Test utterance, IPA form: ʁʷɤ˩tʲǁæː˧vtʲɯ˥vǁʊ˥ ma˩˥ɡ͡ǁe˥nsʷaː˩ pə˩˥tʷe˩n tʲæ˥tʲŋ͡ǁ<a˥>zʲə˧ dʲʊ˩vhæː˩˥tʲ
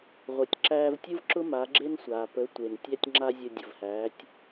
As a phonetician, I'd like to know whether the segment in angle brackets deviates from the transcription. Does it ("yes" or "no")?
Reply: no